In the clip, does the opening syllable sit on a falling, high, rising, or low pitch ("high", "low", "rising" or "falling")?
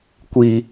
low